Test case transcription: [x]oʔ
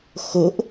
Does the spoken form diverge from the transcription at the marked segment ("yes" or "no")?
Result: no